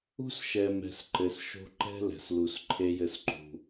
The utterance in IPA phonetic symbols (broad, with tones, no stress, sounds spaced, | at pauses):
ṳ˦ s ʃ ɛ˨ m ɛ̤˨ s ǃ ɘ˨ s ʃ o̤˦ ǃ ɛ̤˦ l ɛ̤˨ s l u˨ s ǃʰ e˦ j ɘ˦ s ǃ ṳ˦